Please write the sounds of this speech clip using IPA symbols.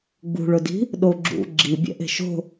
ɡ͡b ṳ ɭ ʊ d i̤ | ɗ o ɡ͡ǁ ṵ ɡ͡ǁ i bʲ ɛ̰ ʔ e̤ ʃ o̤

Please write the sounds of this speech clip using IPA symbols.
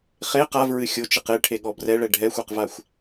χ e q a v ɹ ɨ xʲ o t͡ʃ ɨ q e ʈʰ e ɠ ɔ b r ɛ ɭ ɛ ɖʱ ɛ xʷ e q v a xʷ

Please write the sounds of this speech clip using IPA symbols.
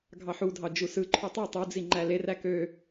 ɡʱ ɑ ħ u dʱ ɑ d͡ʒ u s ɯ ǃʰ y tˤ i tˤ u d͡z i ŋ͡ǃ æ l e r æ k ø

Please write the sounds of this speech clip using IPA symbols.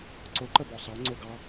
ǀ ʊ ǃ ə b ɔ sˤ ɑ ŋ͡ǀ ʊ ɡ ɑ

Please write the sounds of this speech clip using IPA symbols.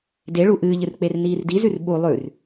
d e ɭ u ʔ ɨː ʎ ɨ r k͡p e r n iː r d i z ʉ r ɓ u lˠ ʉ r

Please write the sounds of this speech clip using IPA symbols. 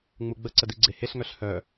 ŋ͡m u ɡ͡b ə ǀ ə d i ɡ͡ǀ e h e ɬ ŋ œ ɬ h œ

